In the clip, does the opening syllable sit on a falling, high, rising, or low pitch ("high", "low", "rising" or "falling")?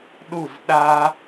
falling